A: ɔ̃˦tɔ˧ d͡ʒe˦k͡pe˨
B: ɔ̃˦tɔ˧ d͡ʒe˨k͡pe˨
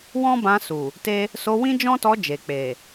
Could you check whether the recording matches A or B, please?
B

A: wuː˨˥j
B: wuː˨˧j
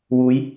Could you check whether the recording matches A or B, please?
B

